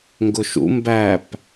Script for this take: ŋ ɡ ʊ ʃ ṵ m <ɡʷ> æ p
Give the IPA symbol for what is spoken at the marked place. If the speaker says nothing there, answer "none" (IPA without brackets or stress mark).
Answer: b